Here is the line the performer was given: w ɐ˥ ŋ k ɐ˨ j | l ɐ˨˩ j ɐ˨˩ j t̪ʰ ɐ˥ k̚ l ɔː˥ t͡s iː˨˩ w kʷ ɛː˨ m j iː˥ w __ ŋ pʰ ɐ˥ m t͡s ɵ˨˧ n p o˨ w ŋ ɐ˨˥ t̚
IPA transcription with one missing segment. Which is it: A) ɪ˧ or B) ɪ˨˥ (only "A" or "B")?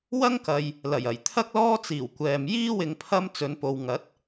A